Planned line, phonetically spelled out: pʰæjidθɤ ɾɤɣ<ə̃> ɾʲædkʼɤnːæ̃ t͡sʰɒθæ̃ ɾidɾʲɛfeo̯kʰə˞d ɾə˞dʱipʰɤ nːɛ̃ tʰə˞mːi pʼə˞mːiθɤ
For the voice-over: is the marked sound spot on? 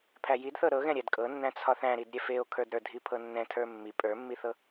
no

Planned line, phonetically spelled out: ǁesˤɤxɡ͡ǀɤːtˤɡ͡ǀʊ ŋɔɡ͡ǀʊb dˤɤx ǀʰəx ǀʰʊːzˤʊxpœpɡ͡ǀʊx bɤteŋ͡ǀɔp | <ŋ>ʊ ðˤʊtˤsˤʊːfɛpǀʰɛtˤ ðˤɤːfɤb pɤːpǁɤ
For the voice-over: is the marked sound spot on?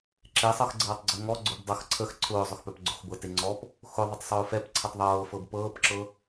no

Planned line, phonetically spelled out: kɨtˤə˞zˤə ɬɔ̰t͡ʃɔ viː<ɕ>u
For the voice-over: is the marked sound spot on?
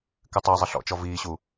yes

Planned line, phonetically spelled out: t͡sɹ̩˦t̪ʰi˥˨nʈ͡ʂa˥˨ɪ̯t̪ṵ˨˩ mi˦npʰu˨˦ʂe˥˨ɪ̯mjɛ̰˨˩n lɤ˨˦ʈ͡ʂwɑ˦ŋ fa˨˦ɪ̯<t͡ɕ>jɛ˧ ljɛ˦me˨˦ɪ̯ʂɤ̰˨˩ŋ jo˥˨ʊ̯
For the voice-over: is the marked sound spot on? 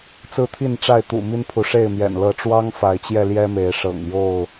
yes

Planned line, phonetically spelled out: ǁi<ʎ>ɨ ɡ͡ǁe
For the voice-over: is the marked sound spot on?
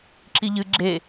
yes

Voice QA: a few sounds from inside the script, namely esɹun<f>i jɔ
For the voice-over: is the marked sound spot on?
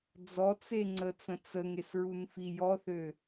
yes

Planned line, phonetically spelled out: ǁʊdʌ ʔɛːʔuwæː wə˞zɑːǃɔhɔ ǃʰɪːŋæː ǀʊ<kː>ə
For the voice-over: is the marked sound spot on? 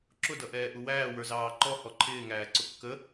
yes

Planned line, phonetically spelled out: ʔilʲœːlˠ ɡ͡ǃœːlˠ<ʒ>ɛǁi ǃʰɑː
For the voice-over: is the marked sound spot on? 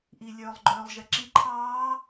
yes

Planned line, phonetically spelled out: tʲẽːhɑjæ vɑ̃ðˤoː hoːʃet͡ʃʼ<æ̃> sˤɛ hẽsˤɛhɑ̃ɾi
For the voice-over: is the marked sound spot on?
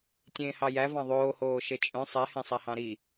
no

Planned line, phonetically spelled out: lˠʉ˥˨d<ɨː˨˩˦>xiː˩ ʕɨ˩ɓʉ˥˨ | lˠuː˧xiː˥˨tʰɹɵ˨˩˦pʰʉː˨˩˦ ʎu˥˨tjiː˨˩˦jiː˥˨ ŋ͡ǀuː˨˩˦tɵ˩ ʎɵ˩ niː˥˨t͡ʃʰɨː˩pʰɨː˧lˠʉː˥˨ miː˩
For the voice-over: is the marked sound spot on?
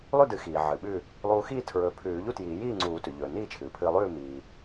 no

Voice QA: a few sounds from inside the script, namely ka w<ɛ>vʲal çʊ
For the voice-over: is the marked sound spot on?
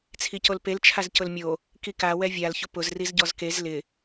yes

